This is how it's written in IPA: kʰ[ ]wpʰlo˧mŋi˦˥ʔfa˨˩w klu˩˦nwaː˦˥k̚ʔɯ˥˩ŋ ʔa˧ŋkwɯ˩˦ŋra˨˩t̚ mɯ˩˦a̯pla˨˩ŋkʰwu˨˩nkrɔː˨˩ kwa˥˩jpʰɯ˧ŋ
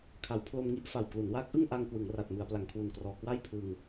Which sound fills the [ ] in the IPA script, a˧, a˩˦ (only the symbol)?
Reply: a˩˦